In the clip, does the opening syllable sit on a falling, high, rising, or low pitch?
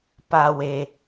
low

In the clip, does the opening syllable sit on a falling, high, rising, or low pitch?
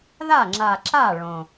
falling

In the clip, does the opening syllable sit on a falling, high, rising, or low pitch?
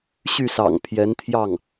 falling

